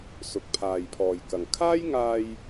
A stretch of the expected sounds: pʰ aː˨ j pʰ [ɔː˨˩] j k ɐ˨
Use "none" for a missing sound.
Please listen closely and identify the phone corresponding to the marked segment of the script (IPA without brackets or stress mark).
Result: ɔː˨